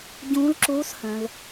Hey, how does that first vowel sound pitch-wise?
rising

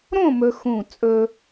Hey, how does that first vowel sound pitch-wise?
falling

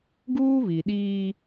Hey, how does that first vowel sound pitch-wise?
high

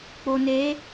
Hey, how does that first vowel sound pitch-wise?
low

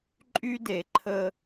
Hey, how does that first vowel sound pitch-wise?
high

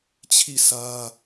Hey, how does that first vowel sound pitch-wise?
falling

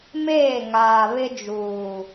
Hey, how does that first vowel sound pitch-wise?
falling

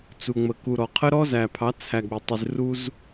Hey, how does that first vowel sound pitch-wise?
low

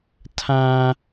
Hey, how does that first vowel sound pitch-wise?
high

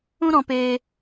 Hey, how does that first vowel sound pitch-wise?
high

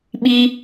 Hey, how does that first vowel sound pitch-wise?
high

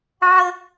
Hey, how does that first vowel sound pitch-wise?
high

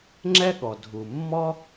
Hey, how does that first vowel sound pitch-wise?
high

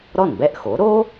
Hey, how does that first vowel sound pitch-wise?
falling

